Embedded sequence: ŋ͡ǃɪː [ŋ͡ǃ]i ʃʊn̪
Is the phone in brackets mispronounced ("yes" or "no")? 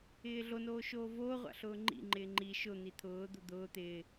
no